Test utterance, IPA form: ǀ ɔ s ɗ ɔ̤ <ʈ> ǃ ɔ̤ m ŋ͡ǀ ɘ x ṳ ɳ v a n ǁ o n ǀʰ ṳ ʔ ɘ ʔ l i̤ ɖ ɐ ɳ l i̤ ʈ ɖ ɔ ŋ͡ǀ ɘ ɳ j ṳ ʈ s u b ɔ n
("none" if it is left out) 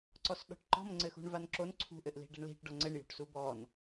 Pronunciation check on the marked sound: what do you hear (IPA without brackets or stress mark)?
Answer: ʈ